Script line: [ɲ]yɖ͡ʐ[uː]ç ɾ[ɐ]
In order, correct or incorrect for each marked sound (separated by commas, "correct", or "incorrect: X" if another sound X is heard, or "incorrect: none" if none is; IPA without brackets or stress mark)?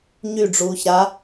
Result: correct, correct, incorrect: a